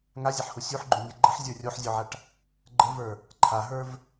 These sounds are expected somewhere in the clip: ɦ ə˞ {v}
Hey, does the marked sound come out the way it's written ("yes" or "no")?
yes